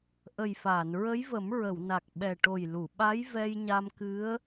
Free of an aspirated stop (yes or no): yes